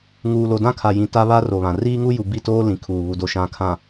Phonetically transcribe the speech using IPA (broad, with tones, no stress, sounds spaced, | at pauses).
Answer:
ŋ uː˨ l o˨ d ã˦ kʰ a˨ j ĩ˨ t a˦ β a˦ r o˨ β ã˨ r iː˦ ŋ u˦ j u˨ b i˦˨ t oː˦ l ĩ˨ kʰ uː˨ β u˨ d o˨ ʃ ã˨ kʰ ã˨